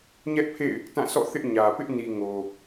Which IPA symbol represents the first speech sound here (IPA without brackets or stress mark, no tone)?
ɲ